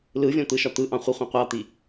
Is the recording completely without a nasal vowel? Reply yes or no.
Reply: no